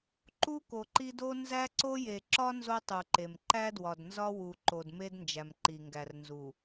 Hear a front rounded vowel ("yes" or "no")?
no